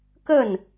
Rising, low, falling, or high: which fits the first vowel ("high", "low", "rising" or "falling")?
falling